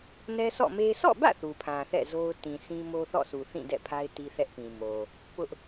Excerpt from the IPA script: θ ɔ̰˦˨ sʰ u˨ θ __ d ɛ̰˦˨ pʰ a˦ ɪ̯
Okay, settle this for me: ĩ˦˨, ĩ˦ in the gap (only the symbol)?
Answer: ĩ˦˨